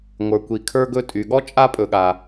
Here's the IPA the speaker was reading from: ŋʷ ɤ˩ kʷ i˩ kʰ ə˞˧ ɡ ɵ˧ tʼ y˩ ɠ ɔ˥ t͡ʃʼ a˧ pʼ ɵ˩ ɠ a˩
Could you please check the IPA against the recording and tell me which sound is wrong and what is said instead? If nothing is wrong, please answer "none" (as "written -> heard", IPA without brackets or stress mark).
ɤ˩ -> ə˞˩